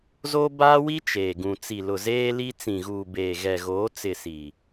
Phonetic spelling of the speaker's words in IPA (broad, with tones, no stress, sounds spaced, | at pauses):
z o˦ b aː˦ w i˦ t͡ʃ eː˨ ɡ ũ˨ t͡s i˨ l ʊ˨ z eː˦ l i˦ t͡s ĩ˨ ɣ uː˨ b eː˨ ɣ ɛ˨ ɣ oː˨˦ t͡s ɪ˦˨ s i˨